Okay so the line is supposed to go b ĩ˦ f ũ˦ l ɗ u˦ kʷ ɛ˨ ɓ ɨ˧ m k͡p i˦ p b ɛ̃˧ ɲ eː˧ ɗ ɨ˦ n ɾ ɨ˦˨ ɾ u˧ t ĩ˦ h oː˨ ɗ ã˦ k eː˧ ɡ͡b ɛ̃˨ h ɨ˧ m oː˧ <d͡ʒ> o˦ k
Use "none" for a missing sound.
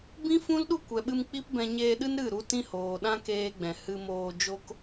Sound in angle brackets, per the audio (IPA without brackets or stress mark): d͡ʒ